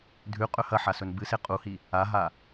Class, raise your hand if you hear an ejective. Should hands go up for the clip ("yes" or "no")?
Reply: yes